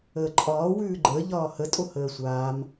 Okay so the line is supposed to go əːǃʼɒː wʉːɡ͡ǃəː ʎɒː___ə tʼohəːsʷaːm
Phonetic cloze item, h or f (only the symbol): h